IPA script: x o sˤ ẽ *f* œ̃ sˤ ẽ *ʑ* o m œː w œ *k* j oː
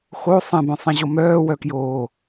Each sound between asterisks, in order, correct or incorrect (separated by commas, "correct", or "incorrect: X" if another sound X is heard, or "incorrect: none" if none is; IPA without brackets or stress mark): incorrect: b, correct, correct